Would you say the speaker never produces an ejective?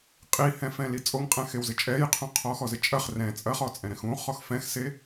no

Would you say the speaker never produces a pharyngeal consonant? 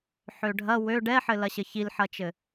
no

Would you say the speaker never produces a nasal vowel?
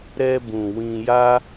no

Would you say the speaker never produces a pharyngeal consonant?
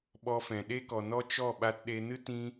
yes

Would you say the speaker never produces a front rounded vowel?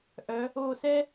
no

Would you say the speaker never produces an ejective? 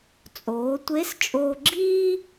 no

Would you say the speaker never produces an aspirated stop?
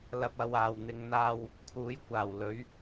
no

